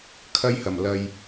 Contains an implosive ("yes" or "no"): no